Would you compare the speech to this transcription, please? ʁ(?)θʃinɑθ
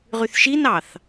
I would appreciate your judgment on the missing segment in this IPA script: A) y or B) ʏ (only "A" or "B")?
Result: A